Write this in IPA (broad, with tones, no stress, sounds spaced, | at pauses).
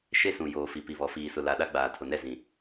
ʃ e˦ s ũ˨ j oː˨ f i˨ p i˨ β ɔ˨ f iː˨ s ʊ˨ l a˨ ɗ a˦ ɡ͡b aː˨ tʰ ʊ˨ n ɛ˦˨ z ĩ˨